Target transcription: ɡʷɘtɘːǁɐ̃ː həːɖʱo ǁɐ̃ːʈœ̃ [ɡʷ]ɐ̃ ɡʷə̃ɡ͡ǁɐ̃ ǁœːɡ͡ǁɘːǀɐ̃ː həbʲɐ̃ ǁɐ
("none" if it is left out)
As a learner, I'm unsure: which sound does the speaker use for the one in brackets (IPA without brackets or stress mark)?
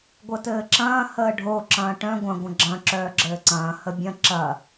ɡʷ